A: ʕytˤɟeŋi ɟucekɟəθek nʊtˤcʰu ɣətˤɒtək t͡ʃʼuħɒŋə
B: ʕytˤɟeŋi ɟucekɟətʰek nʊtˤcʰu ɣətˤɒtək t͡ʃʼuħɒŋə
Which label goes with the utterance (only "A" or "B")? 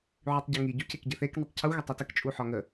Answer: A